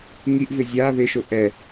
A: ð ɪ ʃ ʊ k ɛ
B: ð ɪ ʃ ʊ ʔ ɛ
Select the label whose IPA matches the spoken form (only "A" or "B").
B